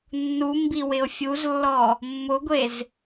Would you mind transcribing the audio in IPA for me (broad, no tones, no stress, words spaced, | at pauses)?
nːumbi wɪo̯fʲuzlːɔ | mːʊɡʷez